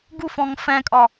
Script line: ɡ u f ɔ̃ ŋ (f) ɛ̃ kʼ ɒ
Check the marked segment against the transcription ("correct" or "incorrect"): correct